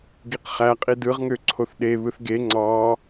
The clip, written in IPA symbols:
ɡiqχæqʼid ɯʁŋø ǀʰoθɗe βɯθɡe ŋ͡ǀɑ

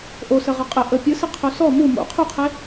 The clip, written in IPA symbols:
ʔosə ʁɑqʼə ʔə pʲɯsɘ qʰosɔ mu mo̰ qʰuqʰe

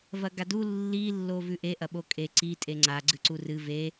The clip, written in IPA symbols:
vɐɡadu lːi lːovʉʔe ʔɐɓokʼe ǀi tʼeŋ͡ǀa ɡ͡ǀɨǀurɨ ve

